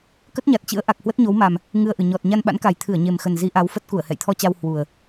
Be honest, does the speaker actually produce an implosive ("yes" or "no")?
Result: yes